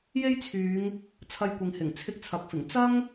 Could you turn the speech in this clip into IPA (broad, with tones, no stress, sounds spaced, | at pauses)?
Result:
j e˥ j t͡sʰ yː˨˧ ŋ | t͡sʰ ɐ˧ j kʷ ɪ˨ ŋ h ɪ˨˩ ŋ t͡sʰ ɪ˧ k̚ t͡sʰ ɐ˨ k̚ f ɪ˨˩ ŋ t͡s ɐ˥ ŋ